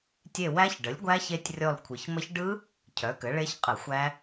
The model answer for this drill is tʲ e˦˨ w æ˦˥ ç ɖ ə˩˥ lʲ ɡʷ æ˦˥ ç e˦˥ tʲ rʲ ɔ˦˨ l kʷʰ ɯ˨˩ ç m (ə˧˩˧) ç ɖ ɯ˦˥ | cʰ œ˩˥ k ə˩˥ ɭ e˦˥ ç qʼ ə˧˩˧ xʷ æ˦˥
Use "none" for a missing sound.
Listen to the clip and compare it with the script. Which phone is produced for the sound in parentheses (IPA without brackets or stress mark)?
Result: ə˦˥